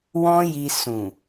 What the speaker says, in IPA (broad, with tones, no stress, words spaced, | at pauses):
wɔ̃˦ji˧sũ˨